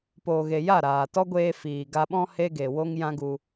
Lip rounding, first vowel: rounded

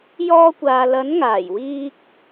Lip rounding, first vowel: rounded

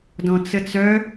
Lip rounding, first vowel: rounded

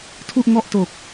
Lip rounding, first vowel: rounded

